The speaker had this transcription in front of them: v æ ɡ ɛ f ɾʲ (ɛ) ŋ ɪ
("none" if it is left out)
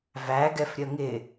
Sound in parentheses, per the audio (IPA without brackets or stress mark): ə